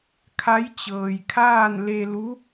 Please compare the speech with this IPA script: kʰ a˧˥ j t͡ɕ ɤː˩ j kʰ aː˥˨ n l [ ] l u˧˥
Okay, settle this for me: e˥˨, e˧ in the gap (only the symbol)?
e˧